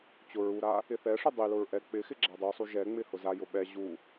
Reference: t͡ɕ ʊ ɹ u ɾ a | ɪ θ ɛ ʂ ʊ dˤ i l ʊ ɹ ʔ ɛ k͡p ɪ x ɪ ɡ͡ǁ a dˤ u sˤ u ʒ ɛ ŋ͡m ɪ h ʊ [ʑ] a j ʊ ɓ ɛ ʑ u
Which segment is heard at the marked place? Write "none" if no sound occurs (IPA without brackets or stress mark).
z